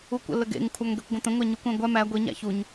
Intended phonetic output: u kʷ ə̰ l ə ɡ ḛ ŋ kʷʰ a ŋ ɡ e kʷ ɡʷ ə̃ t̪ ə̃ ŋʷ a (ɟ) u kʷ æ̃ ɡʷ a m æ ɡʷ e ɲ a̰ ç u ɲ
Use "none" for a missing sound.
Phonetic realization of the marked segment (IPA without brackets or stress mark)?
ɲ